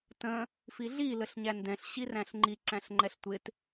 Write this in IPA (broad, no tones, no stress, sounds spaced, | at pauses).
t ə̃ | f i ɮ i l ə ɬ ɲ æ n d ɛ̃ ɬ ɕ i r æ̃ ɬ ŋ͡ǃ i ǀ æ̃ ɬ ŋ͡ǃ ɛ ɬ tʷ ɪ t